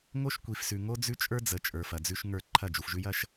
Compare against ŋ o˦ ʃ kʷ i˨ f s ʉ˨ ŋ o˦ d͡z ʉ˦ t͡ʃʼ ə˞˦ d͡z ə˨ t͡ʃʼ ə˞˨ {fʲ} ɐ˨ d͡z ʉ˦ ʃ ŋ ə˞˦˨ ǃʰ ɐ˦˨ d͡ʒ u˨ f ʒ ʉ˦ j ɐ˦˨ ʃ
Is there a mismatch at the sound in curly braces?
yes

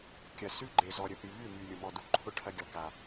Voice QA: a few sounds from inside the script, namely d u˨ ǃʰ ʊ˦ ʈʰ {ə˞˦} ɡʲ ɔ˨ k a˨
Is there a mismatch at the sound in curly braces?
yes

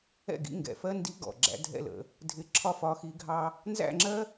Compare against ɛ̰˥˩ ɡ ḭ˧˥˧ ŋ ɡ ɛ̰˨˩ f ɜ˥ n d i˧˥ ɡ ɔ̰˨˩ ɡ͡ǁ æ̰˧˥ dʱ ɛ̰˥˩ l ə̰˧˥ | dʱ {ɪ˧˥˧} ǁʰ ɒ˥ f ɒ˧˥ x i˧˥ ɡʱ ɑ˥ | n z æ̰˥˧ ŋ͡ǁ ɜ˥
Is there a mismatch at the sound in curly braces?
yes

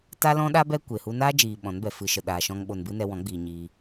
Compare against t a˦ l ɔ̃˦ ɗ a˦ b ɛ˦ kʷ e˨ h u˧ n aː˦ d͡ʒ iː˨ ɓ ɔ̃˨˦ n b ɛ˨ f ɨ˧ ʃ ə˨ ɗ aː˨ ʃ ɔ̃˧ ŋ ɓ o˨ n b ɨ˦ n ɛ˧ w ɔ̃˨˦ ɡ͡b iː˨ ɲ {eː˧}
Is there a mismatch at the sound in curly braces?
yes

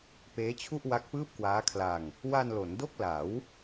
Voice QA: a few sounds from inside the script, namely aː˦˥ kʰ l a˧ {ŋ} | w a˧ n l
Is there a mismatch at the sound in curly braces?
no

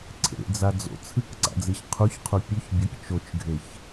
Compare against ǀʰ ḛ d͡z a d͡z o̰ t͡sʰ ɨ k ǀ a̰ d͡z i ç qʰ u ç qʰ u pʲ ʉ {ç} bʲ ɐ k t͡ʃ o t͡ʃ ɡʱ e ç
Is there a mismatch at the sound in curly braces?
no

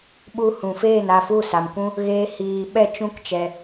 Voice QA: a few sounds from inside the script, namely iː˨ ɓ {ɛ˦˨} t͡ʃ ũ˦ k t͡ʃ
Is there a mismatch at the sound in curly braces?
no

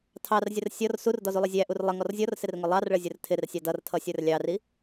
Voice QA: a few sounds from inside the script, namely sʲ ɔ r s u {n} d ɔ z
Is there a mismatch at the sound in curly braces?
yes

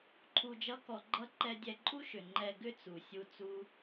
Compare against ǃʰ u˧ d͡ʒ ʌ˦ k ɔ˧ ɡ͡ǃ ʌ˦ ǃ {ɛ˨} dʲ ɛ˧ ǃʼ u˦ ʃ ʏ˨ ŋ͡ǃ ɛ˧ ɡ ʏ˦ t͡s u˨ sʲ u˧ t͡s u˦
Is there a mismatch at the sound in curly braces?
yes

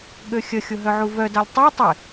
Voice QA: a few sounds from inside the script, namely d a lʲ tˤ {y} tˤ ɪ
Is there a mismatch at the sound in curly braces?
no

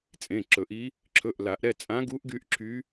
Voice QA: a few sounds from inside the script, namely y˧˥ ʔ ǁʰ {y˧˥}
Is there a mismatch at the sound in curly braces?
no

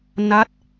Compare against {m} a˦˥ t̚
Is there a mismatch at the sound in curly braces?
yes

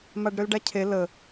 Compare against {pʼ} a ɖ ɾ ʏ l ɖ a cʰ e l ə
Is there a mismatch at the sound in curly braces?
yes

